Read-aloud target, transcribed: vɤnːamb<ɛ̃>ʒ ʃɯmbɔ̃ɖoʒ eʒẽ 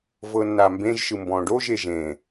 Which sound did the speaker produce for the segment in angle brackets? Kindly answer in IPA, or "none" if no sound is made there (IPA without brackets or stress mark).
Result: ẽ